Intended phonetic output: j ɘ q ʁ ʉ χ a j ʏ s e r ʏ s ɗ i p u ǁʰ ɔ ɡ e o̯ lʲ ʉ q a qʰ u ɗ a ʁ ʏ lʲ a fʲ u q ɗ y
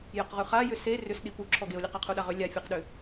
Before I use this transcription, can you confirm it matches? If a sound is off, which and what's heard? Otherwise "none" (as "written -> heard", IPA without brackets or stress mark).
y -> ʏ